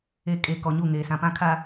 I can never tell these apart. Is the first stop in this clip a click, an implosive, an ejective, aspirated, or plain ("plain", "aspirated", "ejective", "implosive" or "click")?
ejective